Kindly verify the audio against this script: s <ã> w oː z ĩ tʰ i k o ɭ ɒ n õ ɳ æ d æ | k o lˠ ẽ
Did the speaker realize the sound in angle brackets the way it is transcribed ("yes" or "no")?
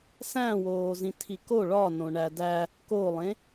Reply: no